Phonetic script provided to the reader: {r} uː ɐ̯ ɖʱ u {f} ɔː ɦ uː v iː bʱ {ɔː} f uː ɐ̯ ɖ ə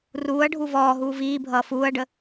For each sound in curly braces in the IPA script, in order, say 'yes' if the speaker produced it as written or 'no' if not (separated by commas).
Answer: yes, no, no